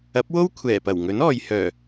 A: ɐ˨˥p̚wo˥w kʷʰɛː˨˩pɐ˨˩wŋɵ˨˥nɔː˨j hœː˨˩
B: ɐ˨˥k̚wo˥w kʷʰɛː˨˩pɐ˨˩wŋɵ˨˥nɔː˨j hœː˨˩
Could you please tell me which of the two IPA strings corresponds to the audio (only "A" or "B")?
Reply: A